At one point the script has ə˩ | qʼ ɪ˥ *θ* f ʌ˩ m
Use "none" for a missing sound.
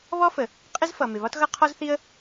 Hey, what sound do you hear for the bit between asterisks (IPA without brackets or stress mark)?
z